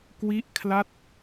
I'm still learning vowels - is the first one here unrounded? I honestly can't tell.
yes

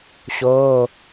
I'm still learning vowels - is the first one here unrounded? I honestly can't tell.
no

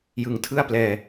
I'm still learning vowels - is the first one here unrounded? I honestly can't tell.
yes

